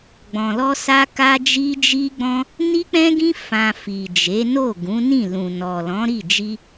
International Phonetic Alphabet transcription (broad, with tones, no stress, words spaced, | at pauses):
ɡ͡bɔ̃˧lɔ˦sa˦ka˦ d͡ʒi˦d͡ʒi˦ɡ͡bɔ̃˦ | ni˦k͡pɛ̃˦ɡĩ˦ fã˧fi˨ d͡ʒe˨˦no˦˨ɡũ˨˦ nĩ˦˨lũ˨ nɔ˨lɔ̃˨˦ɾi˦˨ d͡ʒi˧